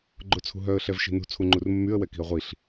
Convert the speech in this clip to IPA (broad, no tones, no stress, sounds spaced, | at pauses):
ɡ͡ǃ o t͡sʰ ṳ ɦ œ ə̯ ɬ ɛ v ʃ i̤ n ṳ t͡sʰ u ŋ͡ǃ u r mː y ə̯ w ɛ k i̤ ə̯ ʁʷ i ɬ